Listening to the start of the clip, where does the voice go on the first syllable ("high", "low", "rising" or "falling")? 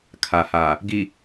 low